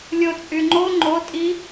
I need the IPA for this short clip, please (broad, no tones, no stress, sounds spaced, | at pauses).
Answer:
lʲ o t͡sʼ y ŋ͡ǃ o ŋ͡ǃ o tʼ i